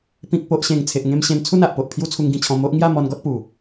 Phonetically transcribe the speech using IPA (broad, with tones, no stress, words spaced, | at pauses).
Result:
pĩ˨k̚po˨ʔɕẽ˨˩ŋ t͡sʰe˨ʔŋẽ˧mɕẽ˧n t͡sʰu˥˧na˨ʔpo˨ʔ pʰju˦t͡sʰu˧ŋɡĩ˧t͡ɕʰɔ̃˧ mo˦ʔ ŋja˥˧ mɔ˧nɡɔ˦t̚pu˨˩